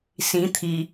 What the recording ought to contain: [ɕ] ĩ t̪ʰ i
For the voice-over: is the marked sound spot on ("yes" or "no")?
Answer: no